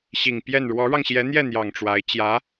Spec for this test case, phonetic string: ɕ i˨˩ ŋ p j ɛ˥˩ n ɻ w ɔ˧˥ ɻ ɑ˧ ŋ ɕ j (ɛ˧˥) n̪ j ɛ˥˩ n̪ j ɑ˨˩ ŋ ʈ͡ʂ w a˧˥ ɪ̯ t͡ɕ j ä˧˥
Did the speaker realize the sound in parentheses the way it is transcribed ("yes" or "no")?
yes